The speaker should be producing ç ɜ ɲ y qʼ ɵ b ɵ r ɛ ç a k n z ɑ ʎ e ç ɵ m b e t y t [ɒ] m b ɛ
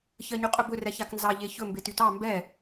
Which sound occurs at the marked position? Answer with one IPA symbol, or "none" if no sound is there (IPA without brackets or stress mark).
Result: ɑ